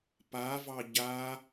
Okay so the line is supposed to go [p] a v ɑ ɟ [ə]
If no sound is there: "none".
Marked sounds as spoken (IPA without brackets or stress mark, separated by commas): p, a